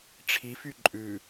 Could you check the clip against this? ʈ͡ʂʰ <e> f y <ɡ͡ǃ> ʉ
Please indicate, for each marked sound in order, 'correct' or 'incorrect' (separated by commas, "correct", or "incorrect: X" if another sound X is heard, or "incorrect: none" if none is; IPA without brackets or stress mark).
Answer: incorrect: i, incorrect: ǃʼ